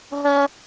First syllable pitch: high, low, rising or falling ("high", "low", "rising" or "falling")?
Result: high